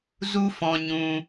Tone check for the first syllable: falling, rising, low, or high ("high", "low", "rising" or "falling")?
high